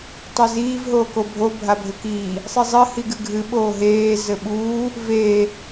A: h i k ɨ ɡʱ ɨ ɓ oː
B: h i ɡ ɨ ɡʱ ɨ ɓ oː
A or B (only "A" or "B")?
B